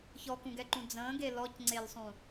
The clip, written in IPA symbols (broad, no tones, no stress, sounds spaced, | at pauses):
ç ɔ k ũ ɡ ɛ ǃ ũ d͡z ə̃ː ɡ e l ɔ c ŋ͡ǀ e l sˤ ũ